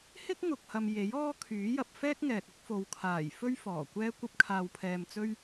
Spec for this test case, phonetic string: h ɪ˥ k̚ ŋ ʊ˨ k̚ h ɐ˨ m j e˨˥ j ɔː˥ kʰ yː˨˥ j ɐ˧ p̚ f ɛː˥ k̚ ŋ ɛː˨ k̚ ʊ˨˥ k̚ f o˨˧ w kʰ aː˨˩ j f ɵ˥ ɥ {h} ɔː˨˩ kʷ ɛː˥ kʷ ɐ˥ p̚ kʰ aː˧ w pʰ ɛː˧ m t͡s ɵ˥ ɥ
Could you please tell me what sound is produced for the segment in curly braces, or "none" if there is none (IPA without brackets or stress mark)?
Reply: f